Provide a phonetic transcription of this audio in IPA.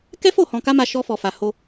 k ɛ˦ f o˦˨ h ɔ̃˧ k a˦ m a˧ ʃ ɔ˧ f ɔ˨ f a˨ h o˧

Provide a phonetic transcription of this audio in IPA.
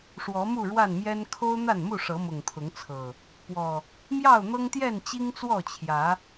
ʂ w ɔ˨˦ m u˥˨ ɻ w a˥˨ n m j ɛ˦ n kʰ o˦ ʊ̯ n̪ a˥˨ n m u˥˨ ʂ ɤ˨˦ m ʊ˨˩ ŋ t̪ʰ ʊ˨˦ ŋ t͡sʰ ɤ˨˩ | p w ɔ˨˩ | m j ɑ˥˨ ʊ̯ n̪ ɤ˦ ŋ t̪ j ɛ˥˨ n t͡ɕ i˦ ŋ t͡s w ɔ˥˨ t͡ɕʰ j ä˨˦

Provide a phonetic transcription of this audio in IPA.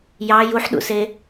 j ɑ j u ħ ɗ ṵ s e

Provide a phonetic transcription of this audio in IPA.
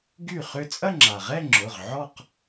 ɡ y˥˩ χ ʏ˥˧ t͡sʼ ɐ˥˧ ŋ͡ǁ a˩ ʁ ɛ˥˧ ŋ͡ǁ ʊ˩˧˩ ʁ ʕ ɔ˥˧ q

